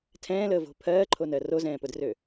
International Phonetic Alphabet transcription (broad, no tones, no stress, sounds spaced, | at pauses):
tʰ ɛ̃ː l əː v o̤ pʰ ɜː ǃʰ o n ɜ r o z ɛ̃ː p ʊ d r ø